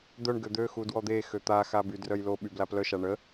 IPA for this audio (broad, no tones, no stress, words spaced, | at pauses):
d̪œɳ ɡød̪øxu dwɔd̪exø t̪axa bydrœj loɓy blaplœʃa ɳə